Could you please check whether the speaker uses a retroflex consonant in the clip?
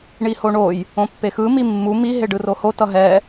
yes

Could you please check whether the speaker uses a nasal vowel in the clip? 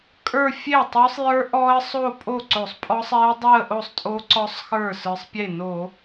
no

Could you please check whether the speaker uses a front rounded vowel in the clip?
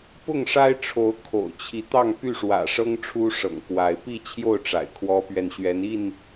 yes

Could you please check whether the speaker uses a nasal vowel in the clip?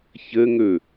no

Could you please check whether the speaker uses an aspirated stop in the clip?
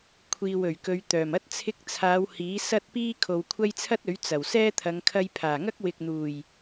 yes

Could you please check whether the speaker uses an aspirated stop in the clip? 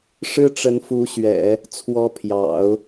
yes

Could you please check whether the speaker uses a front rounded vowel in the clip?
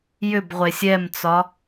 yes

